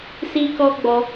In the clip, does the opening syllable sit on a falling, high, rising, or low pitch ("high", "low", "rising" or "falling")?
high